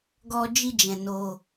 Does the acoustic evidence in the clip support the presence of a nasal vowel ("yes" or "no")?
yes